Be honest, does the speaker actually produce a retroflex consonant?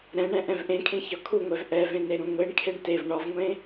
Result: yes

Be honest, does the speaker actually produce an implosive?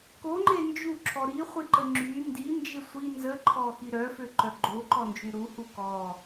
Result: no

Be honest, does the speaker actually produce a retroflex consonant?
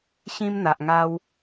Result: no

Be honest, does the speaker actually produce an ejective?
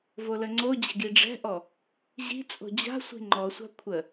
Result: yes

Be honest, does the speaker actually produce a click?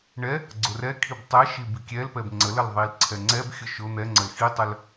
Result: yes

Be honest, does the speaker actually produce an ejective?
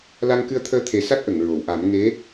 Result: no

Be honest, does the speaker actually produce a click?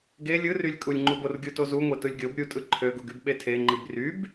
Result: yes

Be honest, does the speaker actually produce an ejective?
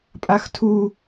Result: yes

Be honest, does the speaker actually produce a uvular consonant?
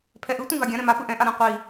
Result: yes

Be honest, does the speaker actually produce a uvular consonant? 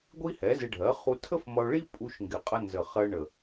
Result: yes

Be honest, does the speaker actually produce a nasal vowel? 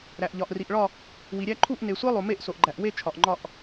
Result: no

